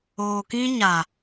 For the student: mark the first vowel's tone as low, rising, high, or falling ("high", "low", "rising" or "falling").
low